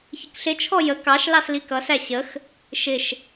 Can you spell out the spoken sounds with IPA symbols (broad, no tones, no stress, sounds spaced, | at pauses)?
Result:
ç ɪ k ɬ ɪ t͡ʃʰ ɔ j ə k ɑ ʃ l ɑ s l i k ʌ s æ ɕ ə x | ʃ ɪ ʃ